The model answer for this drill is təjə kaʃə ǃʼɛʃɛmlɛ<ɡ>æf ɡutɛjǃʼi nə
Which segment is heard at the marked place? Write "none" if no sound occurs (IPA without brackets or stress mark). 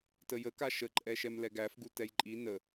ɡ